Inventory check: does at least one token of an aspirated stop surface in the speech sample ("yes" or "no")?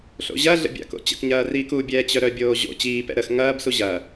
no